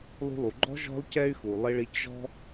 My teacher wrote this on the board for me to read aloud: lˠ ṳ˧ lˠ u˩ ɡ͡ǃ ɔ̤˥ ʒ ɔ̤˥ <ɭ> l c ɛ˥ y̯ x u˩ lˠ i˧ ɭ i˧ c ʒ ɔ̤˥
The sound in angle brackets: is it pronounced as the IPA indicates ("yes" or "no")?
no